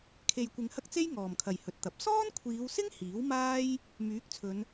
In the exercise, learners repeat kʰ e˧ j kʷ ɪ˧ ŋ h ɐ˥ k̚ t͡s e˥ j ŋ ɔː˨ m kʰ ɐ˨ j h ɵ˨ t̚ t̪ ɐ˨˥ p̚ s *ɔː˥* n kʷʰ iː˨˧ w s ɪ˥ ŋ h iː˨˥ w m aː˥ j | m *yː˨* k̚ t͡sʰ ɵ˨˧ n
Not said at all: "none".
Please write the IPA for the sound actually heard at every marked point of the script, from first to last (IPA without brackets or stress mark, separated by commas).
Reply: ɔː˥, yː˨˥